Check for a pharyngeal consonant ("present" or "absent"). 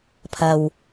absent